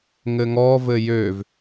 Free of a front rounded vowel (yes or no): no